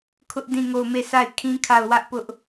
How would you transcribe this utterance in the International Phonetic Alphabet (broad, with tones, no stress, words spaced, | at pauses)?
kʰʊ˦ʔ dĩ˦˨ŋo˦˨ʊ̯ me˦˨sʰa˦˨ɪ̯ kʰĩ˦kʰa˦˨ʊ̯ wä˦ʔpʊ˦ʔ